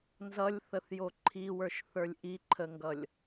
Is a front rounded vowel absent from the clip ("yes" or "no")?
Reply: yes